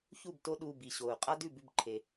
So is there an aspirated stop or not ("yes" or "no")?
yes